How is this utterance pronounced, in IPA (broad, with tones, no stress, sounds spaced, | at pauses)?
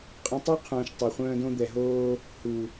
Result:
qʼ ə̃˧ tˤ a˦ qʰ ũː˨ ʃ tˤ œ˨ χʷ œ̃ː˧ d õ˧ d̪ ɛ˨ ɦ oː˧ | h u˨